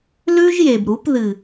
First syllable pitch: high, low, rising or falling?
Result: high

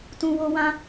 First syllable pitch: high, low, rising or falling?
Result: high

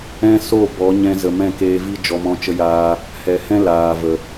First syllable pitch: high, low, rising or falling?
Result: high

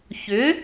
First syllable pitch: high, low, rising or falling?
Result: rising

